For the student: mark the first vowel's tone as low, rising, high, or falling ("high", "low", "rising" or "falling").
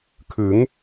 rising